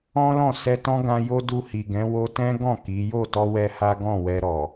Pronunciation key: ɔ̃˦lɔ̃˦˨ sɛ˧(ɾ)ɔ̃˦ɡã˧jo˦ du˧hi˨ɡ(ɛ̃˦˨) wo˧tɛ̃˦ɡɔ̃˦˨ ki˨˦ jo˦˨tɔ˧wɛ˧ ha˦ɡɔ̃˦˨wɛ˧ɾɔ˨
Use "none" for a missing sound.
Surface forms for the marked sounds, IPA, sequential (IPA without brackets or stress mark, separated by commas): t, ɛ̃˨˦